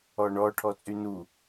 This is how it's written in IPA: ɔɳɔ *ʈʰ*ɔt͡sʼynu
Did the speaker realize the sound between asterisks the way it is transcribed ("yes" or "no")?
yes